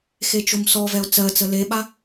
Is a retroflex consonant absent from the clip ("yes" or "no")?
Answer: yes